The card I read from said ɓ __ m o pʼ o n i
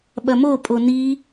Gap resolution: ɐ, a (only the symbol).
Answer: ɐ